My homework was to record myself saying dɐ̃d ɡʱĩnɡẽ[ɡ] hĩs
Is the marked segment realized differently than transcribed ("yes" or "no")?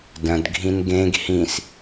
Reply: no